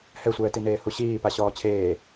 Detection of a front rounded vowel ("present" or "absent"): absent